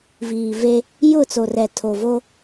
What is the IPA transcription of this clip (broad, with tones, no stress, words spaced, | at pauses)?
viː˨ve˦ | jʊ˦˨t͡so˨rɛ˨ tʰo˨vo˦